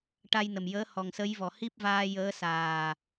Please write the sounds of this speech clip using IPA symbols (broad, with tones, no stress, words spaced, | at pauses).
ʈa˧jnə˨˩mjəː˧˥ hɔ˨˩ŋsə˧˥jvɔ˨˩ hi˦˥p̚vaː˧jəː˧˥ saː˨˩